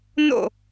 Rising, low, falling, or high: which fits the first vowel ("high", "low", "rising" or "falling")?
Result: falling